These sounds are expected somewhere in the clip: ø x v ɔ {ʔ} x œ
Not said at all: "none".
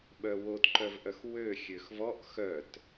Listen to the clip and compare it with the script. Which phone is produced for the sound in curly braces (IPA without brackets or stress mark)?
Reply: ʔ